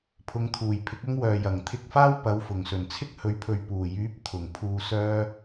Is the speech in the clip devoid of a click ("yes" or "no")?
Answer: yes